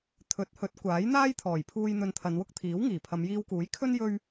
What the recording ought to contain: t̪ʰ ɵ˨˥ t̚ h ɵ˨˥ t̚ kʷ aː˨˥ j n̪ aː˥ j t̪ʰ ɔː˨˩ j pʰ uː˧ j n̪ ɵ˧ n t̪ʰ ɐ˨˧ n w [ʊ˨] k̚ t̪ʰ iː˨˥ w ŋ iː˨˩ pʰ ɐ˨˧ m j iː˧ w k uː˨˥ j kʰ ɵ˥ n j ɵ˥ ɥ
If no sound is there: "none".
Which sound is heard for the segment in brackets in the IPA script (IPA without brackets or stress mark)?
ʊ˥